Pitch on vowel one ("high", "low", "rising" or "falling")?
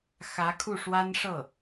rising